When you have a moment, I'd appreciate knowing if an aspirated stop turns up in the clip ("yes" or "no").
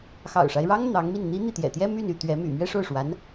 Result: no